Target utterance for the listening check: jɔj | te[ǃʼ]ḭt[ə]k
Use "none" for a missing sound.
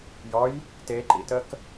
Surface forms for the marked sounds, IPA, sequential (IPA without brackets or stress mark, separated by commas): ǃ, ə